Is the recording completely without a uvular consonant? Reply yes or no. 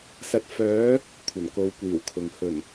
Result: yes